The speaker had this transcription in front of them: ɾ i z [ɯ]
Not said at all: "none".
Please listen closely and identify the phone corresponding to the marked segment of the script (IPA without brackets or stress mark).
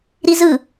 ɯ